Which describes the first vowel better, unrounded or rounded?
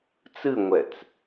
unrounded